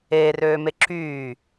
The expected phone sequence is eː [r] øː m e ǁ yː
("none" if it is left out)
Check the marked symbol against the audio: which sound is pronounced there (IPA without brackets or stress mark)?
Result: r